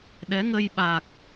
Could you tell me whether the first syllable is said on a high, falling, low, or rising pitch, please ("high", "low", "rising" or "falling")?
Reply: rising